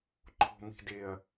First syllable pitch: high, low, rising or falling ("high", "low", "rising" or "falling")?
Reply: low